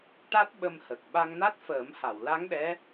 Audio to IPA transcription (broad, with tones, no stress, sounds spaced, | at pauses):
ʈ a˦˥ t̚ ɓ ə˧ m h ə˨˩ k̚ ɓ a˧ ŋ n a˦˥ t̚ f əː˨˩˦ m h a˨˩˨ w l a˧˥ ŋ ɗ ɛ˧˥